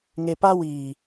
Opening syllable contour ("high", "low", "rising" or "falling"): low